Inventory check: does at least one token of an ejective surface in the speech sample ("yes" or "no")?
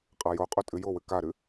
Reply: yes